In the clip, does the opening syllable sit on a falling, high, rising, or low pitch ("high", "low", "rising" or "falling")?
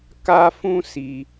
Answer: high